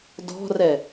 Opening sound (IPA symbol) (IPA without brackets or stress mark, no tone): d